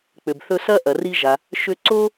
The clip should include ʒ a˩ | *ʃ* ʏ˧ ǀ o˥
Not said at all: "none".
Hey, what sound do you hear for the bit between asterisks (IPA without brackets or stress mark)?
ʃ